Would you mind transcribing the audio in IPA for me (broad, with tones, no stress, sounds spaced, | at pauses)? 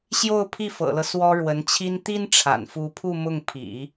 ɕ j o˥˧ ʊ̯ pʰ i˥˩ f ɤ̰˨˩ l ɤ˦ s w ɔ˥ ɻ w ə˧˥ n t͡ɕʰ i˥ n t̪ i˥ n ʈ͡ʂʰ a̰˨˩ n f u˧˥ pʰ u˥˧ m ʊ˥˩ ŋ pʰ ḭ˨˩˦